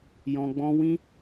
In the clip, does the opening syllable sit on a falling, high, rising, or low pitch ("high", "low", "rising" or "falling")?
low